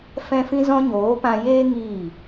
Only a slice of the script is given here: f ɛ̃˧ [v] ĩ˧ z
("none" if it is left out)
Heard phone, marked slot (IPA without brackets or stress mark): f